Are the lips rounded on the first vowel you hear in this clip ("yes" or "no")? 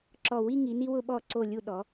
yes